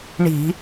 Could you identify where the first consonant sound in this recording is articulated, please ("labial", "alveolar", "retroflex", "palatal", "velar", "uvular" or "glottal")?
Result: retroflex